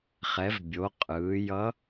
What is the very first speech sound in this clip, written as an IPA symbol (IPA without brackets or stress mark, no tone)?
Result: χ